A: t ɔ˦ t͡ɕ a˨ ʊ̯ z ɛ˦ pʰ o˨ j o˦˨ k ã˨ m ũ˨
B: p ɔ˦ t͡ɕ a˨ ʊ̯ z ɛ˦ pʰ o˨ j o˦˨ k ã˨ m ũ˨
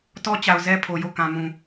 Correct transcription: A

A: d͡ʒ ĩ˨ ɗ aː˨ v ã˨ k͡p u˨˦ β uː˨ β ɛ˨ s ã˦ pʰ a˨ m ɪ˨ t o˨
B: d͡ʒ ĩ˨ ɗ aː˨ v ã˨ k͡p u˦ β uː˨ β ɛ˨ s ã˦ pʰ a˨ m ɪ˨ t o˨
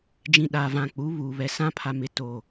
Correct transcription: A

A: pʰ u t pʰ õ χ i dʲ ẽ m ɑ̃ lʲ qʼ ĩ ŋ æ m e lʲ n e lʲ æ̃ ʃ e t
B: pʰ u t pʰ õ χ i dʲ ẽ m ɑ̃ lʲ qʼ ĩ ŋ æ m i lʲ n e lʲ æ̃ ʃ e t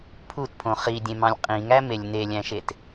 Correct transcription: A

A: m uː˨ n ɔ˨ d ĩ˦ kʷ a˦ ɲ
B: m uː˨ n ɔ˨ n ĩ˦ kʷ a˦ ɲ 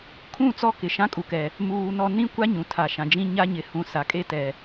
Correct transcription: B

